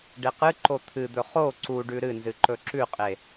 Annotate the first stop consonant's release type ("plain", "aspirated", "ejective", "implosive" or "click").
plain